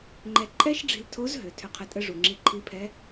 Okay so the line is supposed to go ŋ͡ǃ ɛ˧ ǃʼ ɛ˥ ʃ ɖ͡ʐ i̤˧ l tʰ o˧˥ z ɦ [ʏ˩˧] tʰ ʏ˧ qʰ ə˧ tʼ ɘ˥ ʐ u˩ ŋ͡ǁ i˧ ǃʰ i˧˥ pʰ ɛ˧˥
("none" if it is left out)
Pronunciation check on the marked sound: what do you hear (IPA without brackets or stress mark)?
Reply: ʏ˩˧